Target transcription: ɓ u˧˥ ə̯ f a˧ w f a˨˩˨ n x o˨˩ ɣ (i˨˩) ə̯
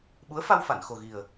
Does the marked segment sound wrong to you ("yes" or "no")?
no